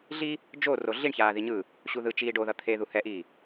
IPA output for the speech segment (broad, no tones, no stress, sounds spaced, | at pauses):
ɮ i | d͡ʒ o r o ɮ i ɳ ç aː ð i ɲ ɯ | ɕ u ð ɯ t͡ʃ iː ɖ o ð ʌ t̪ʰ e ð u h ɛ ʔ iː